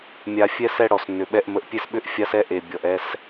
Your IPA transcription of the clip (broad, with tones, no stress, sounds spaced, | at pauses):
mʲ a˨ fʲ ɛ˦ s ɛ˦ ɽ ɔ˨ s nː ʏ˨ ɓ ɛ˦ ʔ m ə˨ ʔ pʲ e˦ s ɓ ʏ˦ ʔ fʲ a˦ s ɛ˦ ʔ e˨ bʲ ɔ˨ ʔ ɛ˦ s